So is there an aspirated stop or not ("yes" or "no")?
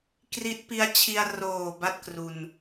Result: yes